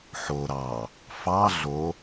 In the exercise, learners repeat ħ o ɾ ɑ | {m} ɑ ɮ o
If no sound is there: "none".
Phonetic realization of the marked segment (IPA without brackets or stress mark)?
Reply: f